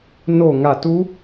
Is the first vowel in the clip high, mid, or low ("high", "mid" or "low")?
mid